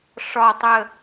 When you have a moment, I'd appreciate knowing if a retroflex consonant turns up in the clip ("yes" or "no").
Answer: yes